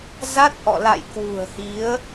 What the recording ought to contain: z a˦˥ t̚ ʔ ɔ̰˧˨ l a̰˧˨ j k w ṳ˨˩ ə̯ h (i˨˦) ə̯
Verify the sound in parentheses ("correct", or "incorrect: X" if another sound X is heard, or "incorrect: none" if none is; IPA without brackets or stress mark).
correct